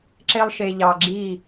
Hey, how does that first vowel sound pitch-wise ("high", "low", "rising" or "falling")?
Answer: high